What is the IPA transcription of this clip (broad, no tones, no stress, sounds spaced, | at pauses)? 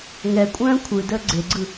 ŋ ɛ kʷʼ œ̃ː kʷʰ ɯ d əː ɡ͡ǀ e ɡ͡ǀ ɯ